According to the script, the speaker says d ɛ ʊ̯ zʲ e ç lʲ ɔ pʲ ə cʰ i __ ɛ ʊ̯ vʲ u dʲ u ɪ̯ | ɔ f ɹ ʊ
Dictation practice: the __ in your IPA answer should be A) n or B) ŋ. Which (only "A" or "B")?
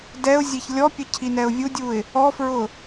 A